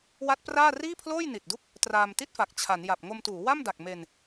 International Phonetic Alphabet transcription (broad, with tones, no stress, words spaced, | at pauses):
wa˦˥t̚praː˥˩ riː˥˩pʰloː˥˩jni˨˩t̚du˦˥k̚ | traː˧mti˥˩t̚fa˨˩k̚ t͡ɕʰa˩˦nja˨˩p̚ ŋo˧mtuː˩˦wa˥˩mda˨˩k̚ me˧n